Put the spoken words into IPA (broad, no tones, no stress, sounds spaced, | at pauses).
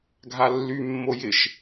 ɡʱ a lː y mː o j ɪ ʃ